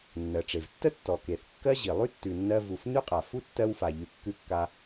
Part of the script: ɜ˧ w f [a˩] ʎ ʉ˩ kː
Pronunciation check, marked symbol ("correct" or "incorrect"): correct